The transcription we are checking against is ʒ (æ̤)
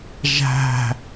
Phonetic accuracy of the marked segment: correct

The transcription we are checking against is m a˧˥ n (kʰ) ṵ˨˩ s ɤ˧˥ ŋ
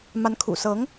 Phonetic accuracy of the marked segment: correct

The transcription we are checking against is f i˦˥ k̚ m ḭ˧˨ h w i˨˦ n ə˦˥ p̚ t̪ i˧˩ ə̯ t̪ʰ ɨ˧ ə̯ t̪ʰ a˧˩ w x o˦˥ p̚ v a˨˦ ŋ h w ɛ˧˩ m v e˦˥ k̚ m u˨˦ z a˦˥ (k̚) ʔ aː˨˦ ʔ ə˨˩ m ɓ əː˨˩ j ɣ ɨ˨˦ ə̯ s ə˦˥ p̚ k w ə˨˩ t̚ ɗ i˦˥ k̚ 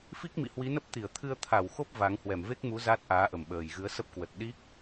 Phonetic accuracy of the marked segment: incorrect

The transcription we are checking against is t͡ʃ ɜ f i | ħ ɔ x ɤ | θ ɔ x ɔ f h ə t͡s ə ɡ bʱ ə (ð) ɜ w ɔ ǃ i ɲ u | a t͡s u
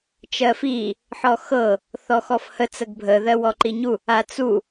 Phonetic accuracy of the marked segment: correct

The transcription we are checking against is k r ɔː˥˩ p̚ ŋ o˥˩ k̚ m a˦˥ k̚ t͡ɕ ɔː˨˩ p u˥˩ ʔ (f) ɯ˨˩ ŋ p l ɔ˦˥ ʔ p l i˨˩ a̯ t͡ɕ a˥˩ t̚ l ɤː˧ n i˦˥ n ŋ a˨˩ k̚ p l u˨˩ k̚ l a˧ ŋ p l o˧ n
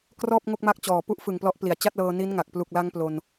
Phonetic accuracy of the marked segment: correct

